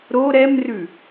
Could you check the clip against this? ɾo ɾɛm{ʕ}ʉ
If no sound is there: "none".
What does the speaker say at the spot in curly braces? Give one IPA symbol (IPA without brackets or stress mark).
r